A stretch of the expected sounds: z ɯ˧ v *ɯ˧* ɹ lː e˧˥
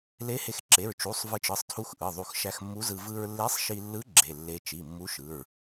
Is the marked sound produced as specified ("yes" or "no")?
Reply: yes